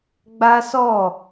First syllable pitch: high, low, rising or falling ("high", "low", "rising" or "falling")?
high